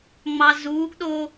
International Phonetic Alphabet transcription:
ŋ͡mɑzuːɡɗoː

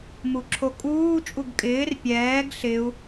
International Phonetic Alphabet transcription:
muǁʰokʼuː t͡ʃʼuɡkʼɪːr pʲɛːɡ ɬɪu̯

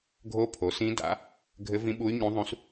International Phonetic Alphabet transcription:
ɡʱo˧˥ pʰo˩˥sĩ˧˥da̰˩˥ | ɡʱɘ˧˥vĩ˧˥ ɓu˧˥y̯ ɲũ˧˥ðˤũ˧˥s

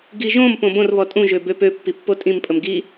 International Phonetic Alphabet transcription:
ɡiʒõm põbõr βɔtʼũ ʒøbøpø pːipːotʼĩm pʼəmɡi

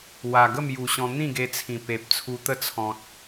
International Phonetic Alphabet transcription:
wa˨˩ɡə˥˧mju˨˩ɕɔ̃˧ n̪ĩ˥˧ɡe˧t͡sʰĩ˨˩ pe˨p̚t͡sʰu˧t̪ə˦ t͡sʰɔ̃˨t̚

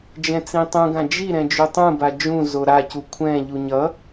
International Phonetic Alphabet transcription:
d͡ʒɛ̃t͡sĩtˤũɡã d͡ʒiɾɛ̃ d͡ʒutˤũba d͡ʒũ zoɾacu kʷʰɛ̃ʎu ɲʌ

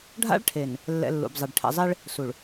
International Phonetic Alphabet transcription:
ɖʱa̰˦ɭʈʰe˨n | lːɛ̰˨ lːṵ˨bzˤɛ˨ɖ ʈʰɛ̰˨zˤe˦ɭ | su˨ɭ

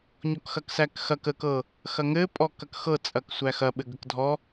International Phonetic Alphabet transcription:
ɲɔkxɐksækxɐk ə kɤ | xɐŋɘ pʼɔkɐkxɤ t͡sʼɐksʷæxɐ ɓɘɡəkdʱɔ

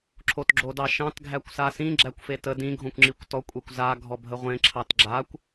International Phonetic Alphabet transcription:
ǁʰotɡ͡ǁodɑʃɑ̃t ɡʱækʷsasĩ ɡ͡ǁækʷfetə dĩ ɡʱõkʷŋ͡ǁikʷtɔ kʷʼekʷza ɡʱɔbʱəʁʷẽ ǁʰɑtɡ͡ǁakʷ

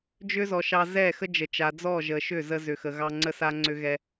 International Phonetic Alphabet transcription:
d͡ʒʏ˦zɔ˨ʃɑ˧ zɛ˦˨ xə˦d͡ʒə˨t͡ʃa˨d͡zɔ˦˨ ʒə˨ ʃʏ˦˨zə˧zʏ˨xə˨ ɣɑ˧ŋ͡ǀə˦sa˦ ŋ͡ǀʏ˧ɣɛ˧

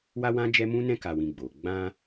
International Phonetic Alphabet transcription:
wa˦ wã˦d͡ʒɛ˦mũ˦nɛ̃˦ ka˧wĩ˧ɡ͡bo˨ ɡ͡bã˧

